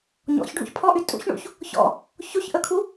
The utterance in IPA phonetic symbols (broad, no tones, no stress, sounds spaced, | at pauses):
ɲ ɔ̰ ç ɖʱ ṵ ç pʰ ɔ ʔ y tʼ ṵ ç ɳ ṵ ç | ç ɔ̰ | ç o ç ʔ ə kʰ u